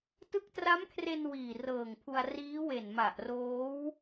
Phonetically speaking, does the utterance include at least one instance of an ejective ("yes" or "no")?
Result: no